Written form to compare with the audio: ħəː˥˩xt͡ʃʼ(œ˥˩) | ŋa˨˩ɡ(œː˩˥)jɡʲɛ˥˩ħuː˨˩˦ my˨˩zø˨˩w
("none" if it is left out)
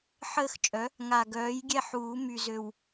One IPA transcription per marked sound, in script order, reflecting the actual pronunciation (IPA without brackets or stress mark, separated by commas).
œ˩˥, œː˩˥